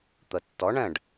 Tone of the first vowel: low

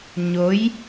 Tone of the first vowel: rising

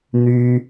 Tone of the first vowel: high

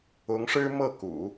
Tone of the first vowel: rising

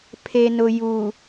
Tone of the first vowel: low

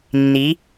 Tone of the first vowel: rising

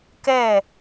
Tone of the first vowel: falling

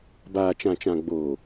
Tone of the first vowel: low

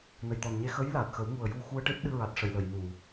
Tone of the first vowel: low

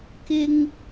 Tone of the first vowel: low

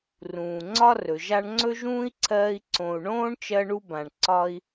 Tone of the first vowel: low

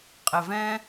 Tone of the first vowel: low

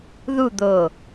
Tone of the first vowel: falling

